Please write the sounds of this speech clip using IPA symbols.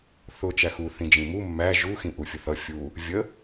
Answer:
θ ʊ t͡ʃ æ x u θ ĩ d͡ʒ ĩ m u mː æ ʒ u x ĩ ʔ u fʲ ʊ θ ʌ fʲ u | vʲ ə

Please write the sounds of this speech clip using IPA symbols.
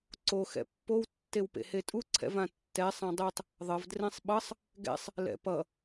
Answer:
ǀ o x ɛ̰ pː o w tː e w p ḛ h e tʼ u ǀʰ ɛ̰ v ã tː ɛ sˤ ã dˤ e tˤ | ðˤ ʌ v d r ẽ sˤ ɓ ʌ sˤ | ɡ ɛ̰ sˤ | l ɛ̰ p ʌ

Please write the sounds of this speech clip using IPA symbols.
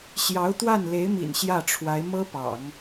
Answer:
ɕ j ɑ˧˥ ʊ̯ t̪ w a˥˩ n l e˧˥ ɪ̯ m ḭ˨˩ n ɕ j ä˥˩ ʈ͡ʂʰ w a˧˥ ɪ̯ m ɤ˥ p ɑ̰˨˩˦ ŋ

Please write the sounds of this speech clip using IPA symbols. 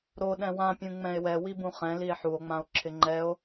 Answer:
ɾ o ɗ ɛ̃ w ã pʲ ũ ŋ͡m ɛ̃ e̯ w ɛ w i b ũ χ ɛ̃ l i e̯ ħ u o̯ ŋ͡m ã o̯ ǁʰ ɪ ŋ͡ǃ ɛ o̯

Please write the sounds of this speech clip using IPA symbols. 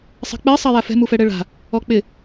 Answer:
sˤ ɛ̤ k͡p ɛ sˤ a j a f ɛ̤ m u f ɛ ɽ ɛ ɭ a̤ | ɔ k͡p ɪ

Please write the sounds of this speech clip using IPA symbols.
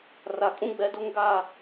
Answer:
r a˨ kʼ ũ˦ ɡ͡b ɛ˨˦ d o˦ ŋ ɡ a˦˨

